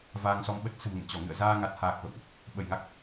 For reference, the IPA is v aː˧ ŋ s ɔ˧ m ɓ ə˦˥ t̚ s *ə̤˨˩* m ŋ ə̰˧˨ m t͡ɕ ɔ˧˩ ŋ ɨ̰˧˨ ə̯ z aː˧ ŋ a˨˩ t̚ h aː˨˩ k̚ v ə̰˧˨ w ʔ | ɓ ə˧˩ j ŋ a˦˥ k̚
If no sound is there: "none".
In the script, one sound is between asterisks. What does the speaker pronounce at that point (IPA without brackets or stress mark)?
ə̤˨˩